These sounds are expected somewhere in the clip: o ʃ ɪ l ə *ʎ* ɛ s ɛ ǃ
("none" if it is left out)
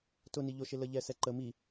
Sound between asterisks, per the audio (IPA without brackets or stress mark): ʎ